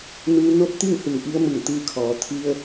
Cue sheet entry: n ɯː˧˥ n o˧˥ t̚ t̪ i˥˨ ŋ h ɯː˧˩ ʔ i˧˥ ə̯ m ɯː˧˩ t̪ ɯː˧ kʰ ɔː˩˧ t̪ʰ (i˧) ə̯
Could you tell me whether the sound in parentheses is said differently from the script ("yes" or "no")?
no